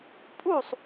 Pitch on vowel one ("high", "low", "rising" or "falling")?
falling